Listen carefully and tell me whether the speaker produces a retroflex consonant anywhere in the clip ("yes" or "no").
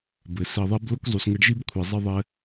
yes